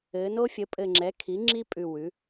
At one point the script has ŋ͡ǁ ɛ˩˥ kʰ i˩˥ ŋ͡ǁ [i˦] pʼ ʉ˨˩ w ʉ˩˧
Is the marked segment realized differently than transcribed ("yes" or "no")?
no